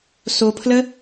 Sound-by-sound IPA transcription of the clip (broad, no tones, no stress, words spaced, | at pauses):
sopʰlə